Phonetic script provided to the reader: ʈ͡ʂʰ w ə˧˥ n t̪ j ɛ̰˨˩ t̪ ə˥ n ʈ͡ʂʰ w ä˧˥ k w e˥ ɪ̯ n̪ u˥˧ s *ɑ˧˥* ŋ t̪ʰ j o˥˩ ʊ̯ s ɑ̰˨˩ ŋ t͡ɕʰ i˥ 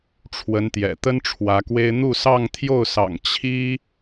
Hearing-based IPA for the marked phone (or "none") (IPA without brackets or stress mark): ɑ˥˧